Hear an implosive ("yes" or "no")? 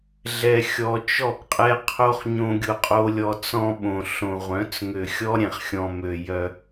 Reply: yes